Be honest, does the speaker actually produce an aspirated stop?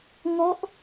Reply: no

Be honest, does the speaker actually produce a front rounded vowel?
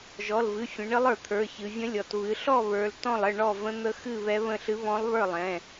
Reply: no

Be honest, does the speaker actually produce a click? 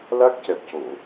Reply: no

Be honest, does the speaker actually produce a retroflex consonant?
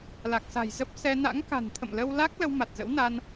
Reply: no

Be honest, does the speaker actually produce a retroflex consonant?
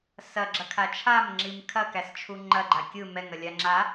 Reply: no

